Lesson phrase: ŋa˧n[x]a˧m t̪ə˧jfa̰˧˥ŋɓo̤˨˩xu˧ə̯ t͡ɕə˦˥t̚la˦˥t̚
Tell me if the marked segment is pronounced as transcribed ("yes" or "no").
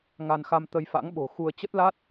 yes